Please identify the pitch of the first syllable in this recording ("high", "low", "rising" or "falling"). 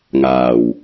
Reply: low